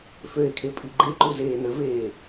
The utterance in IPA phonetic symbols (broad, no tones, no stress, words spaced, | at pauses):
føe̯kʰe pʼiɡ͡ǃeǃu zeːnəveː